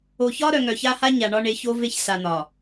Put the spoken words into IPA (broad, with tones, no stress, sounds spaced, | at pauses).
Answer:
o˨ ç ɒ˦ ɾ œ˨ ŋ œ˨ ç a˦ h a˦ ɲ a˨ ɳ ɒ˦ ɳ e˨˦ ç o˦ v e˦ ç s a˨ n̪ ɒ˨